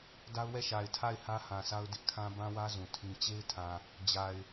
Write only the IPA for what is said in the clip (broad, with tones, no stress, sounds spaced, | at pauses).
d a˦ ʊ̯ w ɛ˦˨ ʃ a˨ ɪ̯ tʰ a˦˨ ɪ̯ h ä˦ h ã˨ s a˦ ʊ̯ d ɪ˦ ʔ kʰ ã˦ b ã˦ w ä˦ z ũ˨ tʰ ĩ˦ t͡ɕ e˦ ɪ̯ tʰ ã˨ | d͡ʑ a˨ ɪ̯